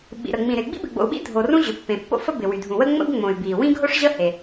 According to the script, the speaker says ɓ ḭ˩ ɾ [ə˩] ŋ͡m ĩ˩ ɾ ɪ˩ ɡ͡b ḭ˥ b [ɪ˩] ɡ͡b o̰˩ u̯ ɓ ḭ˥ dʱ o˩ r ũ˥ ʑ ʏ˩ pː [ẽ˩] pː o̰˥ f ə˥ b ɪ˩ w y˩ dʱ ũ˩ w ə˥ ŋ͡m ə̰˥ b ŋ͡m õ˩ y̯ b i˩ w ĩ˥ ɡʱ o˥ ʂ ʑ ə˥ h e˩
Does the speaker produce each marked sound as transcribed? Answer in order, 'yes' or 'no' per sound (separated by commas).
yes, yes, yes